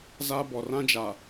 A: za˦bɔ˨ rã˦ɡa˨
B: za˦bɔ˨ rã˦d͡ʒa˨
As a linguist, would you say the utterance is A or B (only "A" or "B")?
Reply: B